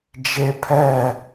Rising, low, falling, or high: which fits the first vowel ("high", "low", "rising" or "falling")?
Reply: high